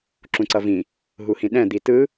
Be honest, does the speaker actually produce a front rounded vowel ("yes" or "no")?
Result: no